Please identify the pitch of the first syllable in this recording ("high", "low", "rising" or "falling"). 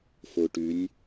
low